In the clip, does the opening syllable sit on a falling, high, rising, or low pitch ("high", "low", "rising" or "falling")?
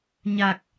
low